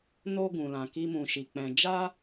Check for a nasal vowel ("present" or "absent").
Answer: present